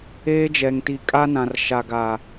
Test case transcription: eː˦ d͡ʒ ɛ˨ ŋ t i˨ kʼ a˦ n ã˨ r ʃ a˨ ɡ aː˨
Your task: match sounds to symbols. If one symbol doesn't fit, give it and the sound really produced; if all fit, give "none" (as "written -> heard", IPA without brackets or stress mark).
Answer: none